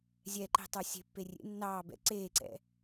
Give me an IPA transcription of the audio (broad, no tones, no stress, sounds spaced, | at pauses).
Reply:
zʲ ɛ ǃ e̤ tˤ ə˞ sʲ e̤ pː e rʲ ḛ nː ɑː b ɛ̰ ǀ eː ǀ ɛ̰